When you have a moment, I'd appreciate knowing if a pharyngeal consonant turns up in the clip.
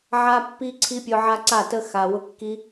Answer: yes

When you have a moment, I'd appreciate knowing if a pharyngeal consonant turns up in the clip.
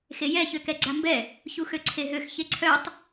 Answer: no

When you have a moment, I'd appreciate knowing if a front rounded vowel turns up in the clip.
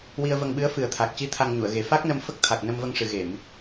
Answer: no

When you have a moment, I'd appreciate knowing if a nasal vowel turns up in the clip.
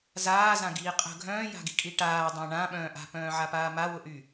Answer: yes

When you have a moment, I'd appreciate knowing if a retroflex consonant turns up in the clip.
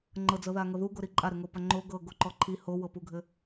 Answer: no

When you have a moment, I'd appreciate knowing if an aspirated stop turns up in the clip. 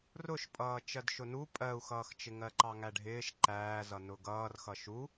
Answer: no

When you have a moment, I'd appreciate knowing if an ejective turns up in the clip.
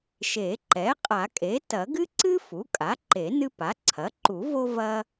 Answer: yes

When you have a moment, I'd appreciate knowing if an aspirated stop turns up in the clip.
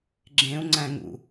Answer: no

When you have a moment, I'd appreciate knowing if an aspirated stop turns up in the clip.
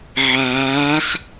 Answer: no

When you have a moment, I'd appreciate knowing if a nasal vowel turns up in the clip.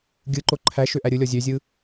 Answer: no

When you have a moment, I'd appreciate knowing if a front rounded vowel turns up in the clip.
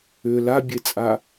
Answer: yes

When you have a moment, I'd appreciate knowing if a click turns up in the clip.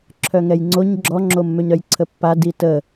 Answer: yes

